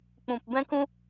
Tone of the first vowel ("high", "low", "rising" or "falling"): low